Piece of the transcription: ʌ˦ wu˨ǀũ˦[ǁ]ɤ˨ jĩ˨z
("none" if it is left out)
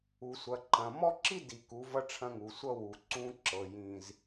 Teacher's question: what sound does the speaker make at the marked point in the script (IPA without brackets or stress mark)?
ǁ